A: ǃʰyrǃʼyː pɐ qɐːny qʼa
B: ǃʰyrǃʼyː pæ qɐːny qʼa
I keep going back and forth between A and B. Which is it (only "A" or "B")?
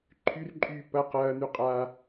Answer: A